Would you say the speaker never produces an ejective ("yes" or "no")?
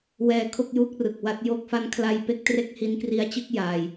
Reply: yes